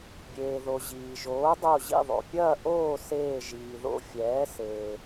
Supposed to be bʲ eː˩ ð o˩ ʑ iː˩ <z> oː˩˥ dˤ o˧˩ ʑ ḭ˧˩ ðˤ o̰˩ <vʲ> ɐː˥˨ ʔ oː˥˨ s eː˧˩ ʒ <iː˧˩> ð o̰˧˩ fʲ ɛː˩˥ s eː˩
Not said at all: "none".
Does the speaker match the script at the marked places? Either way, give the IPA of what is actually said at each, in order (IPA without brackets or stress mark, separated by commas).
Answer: ʒ, pʲ, iː˩